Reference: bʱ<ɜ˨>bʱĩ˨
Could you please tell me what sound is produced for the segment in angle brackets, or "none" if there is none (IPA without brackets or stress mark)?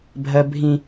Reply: ɜ˨